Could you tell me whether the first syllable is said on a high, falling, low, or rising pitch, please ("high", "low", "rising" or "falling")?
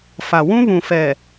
low